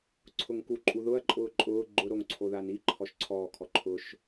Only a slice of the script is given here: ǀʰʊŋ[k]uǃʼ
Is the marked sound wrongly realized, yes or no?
no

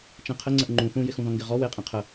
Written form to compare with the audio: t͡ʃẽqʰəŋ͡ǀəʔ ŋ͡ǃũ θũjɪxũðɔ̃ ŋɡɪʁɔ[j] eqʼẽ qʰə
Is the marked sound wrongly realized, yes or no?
yes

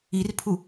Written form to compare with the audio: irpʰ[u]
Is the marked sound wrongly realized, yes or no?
no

